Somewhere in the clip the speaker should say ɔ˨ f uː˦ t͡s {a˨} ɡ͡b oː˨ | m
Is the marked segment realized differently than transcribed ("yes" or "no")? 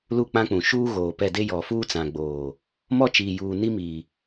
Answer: yes